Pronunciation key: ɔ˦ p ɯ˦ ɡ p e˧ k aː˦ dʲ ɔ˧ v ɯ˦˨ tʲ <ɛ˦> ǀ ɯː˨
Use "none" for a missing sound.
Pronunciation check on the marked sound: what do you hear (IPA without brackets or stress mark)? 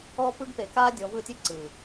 e˦